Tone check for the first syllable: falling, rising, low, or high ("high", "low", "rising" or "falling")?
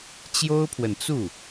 high